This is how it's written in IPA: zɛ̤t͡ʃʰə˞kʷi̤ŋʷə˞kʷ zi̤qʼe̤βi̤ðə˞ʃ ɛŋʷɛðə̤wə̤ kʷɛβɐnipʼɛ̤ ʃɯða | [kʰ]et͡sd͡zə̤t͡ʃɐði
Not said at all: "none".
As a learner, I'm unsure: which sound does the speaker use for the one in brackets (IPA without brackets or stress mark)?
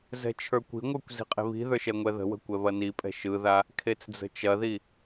kʰ